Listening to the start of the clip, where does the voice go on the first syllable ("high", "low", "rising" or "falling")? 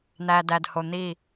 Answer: low